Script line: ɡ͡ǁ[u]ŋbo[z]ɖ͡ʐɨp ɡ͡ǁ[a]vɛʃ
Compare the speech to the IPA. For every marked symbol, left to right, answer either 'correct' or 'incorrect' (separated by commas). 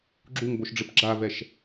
correct, incorrect, correct